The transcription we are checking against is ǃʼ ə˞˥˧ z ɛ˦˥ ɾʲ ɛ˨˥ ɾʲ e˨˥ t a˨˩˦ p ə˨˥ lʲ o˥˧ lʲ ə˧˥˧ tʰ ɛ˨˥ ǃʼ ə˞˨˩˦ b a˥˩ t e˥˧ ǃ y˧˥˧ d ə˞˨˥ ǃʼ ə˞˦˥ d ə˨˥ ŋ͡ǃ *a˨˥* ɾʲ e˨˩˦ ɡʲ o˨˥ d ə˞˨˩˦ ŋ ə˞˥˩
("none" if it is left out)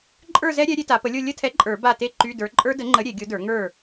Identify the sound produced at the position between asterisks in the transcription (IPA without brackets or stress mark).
ə˨˥